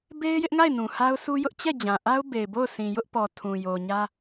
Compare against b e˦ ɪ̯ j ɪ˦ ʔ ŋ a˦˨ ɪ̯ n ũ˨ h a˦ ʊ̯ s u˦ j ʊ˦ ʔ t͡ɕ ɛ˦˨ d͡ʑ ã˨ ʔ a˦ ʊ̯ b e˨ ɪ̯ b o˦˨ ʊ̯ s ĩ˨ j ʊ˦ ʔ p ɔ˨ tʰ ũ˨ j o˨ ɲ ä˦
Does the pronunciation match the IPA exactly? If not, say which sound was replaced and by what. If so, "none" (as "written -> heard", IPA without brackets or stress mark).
none